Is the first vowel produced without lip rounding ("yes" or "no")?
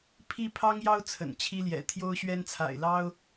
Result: yes